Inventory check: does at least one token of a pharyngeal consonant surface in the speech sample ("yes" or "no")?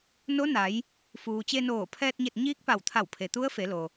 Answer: no